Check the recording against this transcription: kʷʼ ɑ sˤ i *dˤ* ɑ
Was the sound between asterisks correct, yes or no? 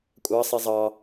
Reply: no